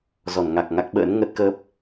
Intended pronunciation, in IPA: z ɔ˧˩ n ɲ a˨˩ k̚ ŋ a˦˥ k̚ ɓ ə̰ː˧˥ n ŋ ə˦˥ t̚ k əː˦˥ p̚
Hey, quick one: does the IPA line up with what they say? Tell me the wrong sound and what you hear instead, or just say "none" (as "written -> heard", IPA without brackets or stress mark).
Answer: ɲ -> ŋ